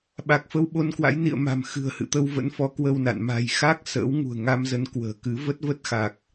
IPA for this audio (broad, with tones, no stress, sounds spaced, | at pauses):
ɓ a˨˩ k̚ f ə˧ w ɓ o˧ n k w a̰˧˥ j n ḭ˧˨ ə̯ m a̤˨˩ m x ɨ̤˨˩ ə̯ h ɨ̰˧˨ t̪ ə˧ w v ə̰˧˥ n f ɔ˨˦ k w ə˧ w n a̰˧˨ n m a̤˨˩ j x a˦˥ k̚ s ə̰ː˧˥ w ŋ ṳ˨˩ ə̯ ŋ a˧ m z ə˨˦ n k w ə̤ː˨˩ k ɨ˨˦ v ə˦˥ t̚ v ə˦˥ t̚ x a˨˩ k̚